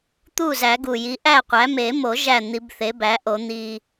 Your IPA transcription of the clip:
t̪ u˥˩ z æ˨˩˦ ɡ u˨˩ j i˩˥ ʔ æ˥˩ qʷ æ˩˥ m e˨˩˦ m o˨˩˦ ʒ æ˥˩ n̪ i˨˩˦ b θ e˩˥ b æ˩˥ ʔ o˨˩˦ n̪ i˨˩

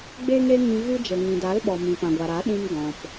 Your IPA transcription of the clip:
ɡ͡b e˦ ŋ e˦ ŋ ĩ˧ ɣ ɨ˧ d͡ʒ ə˨ ŋ ĩ˨ d a˨˦ l ɓ ɔ˨ m ĩ˨ p ã˨ ɡʷ a˨ ɾ a˨˦ ɗ ĩ˧ m ɡ ɔ̃˨ p

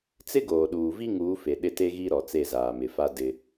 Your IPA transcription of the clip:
t͡s ɪ˦ ɡ oː˨ ɗ uː˨ v i˦ ŋ uː˨˦ f e˨ ɗ ɪ˦˨ t e˦ ɣ i˦ ɾ ɔ˨ t͡s e˦˨ z aː˨ m ɪ˨ f a˦ d ɪ˦

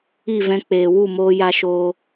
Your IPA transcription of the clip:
i˦˨ v ɛ̃˧ k͡p eː˨ w u˦˨ m oː˧ j a˧ ʃ oː˧

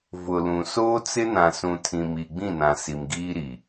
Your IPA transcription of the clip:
v ʊ˨ l ũ˨ s oː˦ t͡s ɪ˦ n ã˨ s ũ˨ tʰ ĩ˨ m i˨ ɡ͡b ĩ˦˨ n ã˨ s i˨ m ɡ iː˦ ɾ i˨

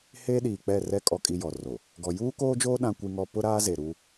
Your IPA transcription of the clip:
h eː˦ ɗ iː˨ k͡p ɛ˦˨ r ɛ˦ kʼ ɔ˦ kʼ i˦ j ɔ˨ r o˨ | ɡ ɔ˨ j uː˦ k oː˦ d͡ʒ oː˦ ɗ ã˦ kʷ i˦ ŋ ɔ˦ p ʊ˦ ɾ aː˦ z e˨ ɾ u˦

